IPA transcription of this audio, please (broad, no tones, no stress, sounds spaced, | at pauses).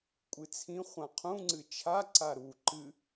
kʷʼ ɨ t͡sʰ ĩ χʷ ã qʰ ũ ŋ͡ǀ ɨ t͡ʃʰ a ǀ a ɾ u ǃ ɨ